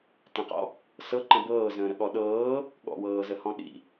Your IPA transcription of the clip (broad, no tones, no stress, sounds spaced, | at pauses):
t ə̃ q ɔ̰ | s ɤ ǃ ə̃ b ɤː z ə̃ː ɾ ə ɠ ɔ ɗ ɤː | ɠ ɔ̰ w ɤː z ə h ɔ̃ ɗ ḭ